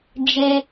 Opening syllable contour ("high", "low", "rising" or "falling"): high